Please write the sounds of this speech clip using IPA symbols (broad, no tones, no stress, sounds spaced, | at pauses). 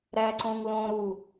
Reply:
ɾ æ ǀ õ ŋ l õ ɾ u